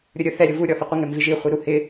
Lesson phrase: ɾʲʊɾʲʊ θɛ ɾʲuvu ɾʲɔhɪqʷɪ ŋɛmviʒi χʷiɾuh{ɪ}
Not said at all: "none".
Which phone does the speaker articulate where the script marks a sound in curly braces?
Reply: ɪ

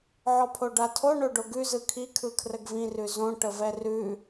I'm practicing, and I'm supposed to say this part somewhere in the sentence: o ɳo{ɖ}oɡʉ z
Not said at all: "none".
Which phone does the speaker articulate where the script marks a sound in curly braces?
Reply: ɖ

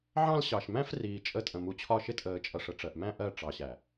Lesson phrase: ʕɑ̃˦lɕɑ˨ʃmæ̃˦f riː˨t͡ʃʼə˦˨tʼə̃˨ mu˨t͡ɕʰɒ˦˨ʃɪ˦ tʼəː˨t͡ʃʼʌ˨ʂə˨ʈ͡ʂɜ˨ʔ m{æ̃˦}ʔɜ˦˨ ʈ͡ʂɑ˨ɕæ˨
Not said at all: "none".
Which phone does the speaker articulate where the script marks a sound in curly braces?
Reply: æ̃˦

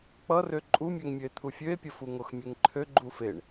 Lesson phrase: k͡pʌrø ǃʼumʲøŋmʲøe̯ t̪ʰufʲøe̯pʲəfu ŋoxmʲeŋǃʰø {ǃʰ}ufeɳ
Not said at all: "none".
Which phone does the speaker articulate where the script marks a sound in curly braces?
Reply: ɡ͡ǃ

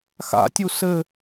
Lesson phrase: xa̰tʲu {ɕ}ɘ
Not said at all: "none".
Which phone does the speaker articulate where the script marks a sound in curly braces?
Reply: s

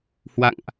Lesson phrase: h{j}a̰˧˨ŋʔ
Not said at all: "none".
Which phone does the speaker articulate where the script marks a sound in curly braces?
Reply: w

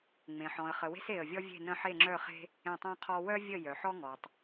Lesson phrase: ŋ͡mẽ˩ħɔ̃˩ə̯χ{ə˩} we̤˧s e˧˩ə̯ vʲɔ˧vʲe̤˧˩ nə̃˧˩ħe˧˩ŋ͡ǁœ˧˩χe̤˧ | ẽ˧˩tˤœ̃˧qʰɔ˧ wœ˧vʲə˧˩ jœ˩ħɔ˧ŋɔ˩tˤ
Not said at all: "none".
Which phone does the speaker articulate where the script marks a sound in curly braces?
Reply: ə˩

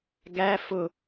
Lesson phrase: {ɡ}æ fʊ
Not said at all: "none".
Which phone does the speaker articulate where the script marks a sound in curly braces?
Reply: ɡ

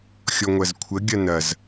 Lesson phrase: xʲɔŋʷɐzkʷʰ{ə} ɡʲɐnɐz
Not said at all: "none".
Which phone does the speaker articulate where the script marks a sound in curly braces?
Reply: ə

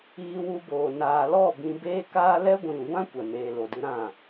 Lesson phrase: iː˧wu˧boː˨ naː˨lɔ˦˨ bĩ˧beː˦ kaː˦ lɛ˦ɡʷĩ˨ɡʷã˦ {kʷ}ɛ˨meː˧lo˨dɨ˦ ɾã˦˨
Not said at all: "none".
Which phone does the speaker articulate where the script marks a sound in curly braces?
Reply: kʷ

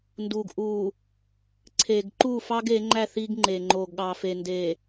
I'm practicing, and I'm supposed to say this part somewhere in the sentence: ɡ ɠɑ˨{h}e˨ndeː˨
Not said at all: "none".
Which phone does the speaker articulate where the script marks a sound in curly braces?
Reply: f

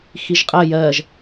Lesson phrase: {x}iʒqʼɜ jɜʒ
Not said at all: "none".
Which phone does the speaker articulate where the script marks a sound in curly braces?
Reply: x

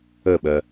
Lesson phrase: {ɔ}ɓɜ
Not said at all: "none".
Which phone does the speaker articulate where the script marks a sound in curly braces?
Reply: ə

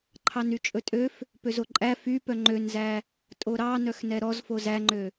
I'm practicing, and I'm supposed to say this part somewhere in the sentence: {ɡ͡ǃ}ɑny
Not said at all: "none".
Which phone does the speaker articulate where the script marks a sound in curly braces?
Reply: ǃʰ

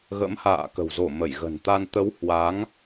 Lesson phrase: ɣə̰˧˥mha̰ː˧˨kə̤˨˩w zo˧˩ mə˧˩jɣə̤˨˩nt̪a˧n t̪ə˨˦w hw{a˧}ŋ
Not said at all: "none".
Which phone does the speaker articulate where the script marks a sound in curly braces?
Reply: a˨˦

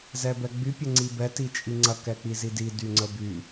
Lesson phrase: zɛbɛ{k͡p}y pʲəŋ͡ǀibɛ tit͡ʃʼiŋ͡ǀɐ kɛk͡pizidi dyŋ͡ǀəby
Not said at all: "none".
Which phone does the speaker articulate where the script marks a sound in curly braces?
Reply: ɡ͡b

